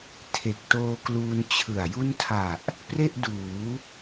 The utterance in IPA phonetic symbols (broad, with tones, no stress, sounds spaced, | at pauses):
tʰ e˨˩ k̚ t oː˧ k l uː˧ n t͡ɕʰ ɯ˨˩ a̯ j u˦˥ n tʰ a˨˩ ʔ | p r e˥˩ ʔ d uː˩˦